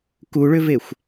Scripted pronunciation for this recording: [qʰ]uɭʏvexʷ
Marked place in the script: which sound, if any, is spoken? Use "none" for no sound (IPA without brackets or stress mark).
k